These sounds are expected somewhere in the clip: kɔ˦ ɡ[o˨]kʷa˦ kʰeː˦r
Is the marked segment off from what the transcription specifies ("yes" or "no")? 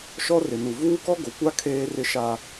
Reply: no